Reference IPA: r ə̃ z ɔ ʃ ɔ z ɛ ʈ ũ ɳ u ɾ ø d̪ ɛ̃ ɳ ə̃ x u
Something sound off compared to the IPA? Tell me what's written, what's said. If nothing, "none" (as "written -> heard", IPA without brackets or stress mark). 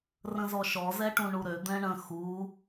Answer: none